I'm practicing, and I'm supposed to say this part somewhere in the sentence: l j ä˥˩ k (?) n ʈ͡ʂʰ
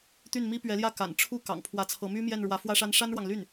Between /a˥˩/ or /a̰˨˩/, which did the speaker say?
a̰˨˩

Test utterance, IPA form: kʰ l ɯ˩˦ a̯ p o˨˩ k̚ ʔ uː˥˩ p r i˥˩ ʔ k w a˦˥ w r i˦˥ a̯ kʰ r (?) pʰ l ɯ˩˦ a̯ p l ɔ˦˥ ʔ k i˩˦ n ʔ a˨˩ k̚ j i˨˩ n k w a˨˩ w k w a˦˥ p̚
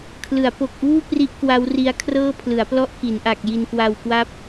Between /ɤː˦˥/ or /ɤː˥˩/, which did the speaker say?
ɤː˥˩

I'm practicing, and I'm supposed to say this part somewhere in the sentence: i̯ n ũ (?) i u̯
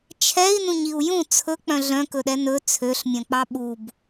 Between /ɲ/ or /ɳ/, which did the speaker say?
ɲ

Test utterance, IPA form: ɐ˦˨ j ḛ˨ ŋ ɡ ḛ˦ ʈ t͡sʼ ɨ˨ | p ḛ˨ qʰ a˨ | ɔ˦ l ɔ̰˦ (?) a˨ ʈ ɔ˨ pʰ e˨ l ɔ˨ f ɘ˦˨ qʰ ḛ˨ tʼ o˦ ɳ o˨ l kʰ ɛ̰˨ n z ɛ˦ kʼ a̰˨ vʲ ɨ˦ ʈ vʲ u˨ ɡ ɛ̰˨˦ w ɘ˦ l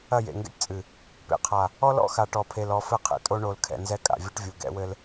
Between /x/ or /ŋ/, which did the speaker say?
x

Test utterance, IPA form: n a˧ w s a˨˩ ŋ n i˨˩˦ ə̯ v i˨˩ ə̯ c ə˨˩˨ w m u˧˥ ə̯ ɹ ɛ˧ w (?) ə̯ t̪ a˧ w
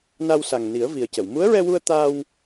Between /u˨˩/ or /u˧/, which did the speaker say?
u˧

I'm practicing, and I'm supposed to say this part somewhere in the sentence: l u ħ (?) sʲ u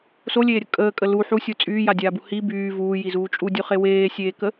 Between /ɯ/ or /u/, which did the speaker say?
u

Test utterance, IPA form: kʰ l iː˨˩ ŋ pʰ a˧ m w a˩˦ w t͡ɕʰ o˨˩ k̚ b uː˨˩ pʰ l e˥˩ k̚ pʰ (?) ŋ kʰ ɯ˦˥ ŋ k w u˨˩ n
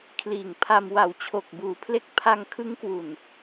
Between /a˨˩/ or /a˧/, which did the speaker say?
a˧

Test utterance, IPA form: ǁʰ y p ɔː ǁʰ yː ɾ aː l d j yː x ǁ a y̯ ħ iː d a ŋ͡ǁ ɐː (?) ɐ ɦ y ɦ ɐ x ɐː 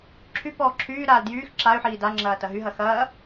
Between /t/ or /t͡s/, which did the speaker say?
t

